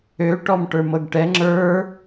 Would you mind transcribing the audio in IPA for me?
ø ʈɔmʈə˞mɤɡʈɛ ŋ͡ǁə˞

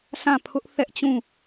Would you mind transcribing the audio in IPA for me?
sã˦˨ pʰʊ˦ʔ θɛ˦ʔt͡ɕũ˦˨

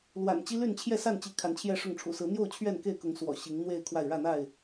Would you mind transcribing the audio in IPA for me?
lwa̰˨˩nt͡ɕi˦ly˥˨n t͡ɕʰjɛ˥˨sa˥˨nt͡ɕi˨˦ kʰa˨˦nt͡ɕʰjɛ˥˨ʂʊ˥˨ŋ ʈ͡ʂʰṵ˨˩sɹ̩˨˦n̪jo˥˨ʊ̯ t͡ɕʰɥɛ˥˨nke˥˨ɪ̯kʊ˨˦ŋ swɔ̰˨˩ɕi˨˦ŋ n̪we˥˨ɪ̯kʰwa˥˨ɪ̯ ɻä˥˨n̪a˥˨ɪ̯

